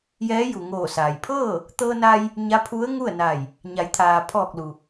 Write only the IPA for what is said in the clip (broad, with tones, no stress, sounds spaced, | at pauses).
j ɛː˧˥ j u˩ ŋ oː˧˩ s aː˩ j pʰ ɤː˥˨ | t̪ ɤː˧ n a˧ j | ɲ a˧˥ pʰ u˧˥ ə̯ ŋ u˥˨ ə̯ n a˧˩ j | ɲ a˩˧ j t̪ʰ aː˩ pʰ ɔː˧˩ k̚ l u˩